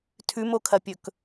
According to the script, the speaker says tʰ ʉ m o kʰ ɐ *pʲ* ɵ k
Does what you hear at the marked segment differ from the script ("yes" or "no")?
no